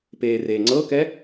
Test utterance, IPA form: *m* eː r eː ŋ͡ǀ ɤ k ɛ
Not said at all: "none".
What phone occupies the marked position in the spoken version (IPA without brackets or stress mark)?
p